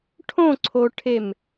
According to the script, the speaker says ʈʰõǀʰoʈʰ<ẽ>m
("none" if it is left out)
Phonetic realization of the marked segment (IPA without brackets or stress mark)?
e